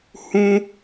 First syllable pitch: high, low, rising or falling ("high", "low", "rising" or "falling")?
high